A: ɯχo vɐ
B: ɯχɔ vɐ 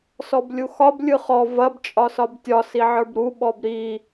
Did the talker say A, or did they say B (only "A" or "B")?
B